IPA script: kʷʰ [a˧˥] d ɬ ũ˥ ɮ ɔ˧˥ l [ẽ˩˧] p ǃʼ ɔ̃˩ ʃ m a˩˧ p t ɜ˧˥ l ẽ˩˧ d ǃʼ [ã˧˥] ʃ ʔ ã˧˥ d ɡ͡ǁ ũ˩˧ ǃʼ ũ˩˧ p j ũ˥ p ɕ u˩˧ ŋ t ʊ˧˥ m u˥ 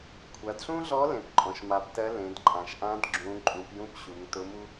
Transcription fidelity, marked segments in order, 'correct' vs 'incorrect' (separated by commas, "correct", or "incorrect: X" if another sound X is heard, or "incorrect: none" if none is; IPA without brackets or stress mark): incorrect: a˩˧, correct, incorrect: ã˩